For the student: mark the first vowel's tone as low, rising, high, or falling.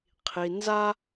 low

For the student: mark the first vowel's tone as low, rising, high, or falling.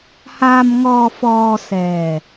low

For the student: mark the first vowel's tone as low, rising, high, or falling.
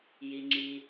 low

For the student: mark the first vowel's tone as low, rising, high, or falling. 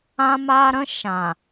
high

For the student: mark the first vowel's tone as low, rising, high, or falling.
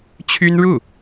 high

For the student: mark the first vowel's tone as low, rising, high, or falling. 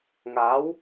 rising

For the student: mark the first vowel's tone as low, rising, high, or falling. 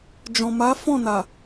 low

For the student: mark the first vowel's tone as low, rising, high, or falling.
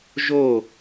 falling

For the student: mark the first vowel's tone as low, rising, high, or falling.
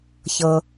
low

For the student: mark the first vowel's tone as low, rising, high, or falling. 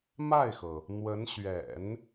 falling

